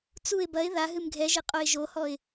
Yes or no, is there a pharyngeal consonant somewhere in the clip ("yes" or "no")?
no